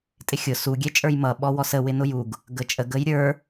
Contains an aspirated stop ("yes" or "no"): no